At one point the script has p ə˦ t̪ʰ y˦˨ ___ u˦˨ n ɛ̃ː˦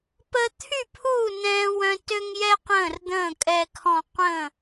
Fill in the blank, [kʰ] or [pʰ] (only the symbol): pʰ